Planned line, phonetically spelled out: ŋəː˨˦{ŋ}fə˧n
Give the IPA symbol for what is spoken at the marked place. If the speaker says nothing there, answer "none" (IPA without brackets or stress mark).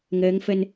ŋ